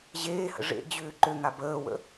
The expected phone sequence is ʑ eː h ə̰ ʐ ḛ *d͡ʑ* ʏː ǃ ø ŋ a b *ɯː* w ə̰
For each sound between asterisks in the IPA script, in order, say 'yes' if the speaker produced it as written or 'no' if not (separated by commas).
yes, no